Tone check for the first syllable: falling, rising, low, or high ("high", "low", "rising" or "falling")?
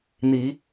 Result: rising